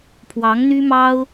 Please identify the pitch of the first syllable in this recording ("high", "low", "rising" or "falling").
rising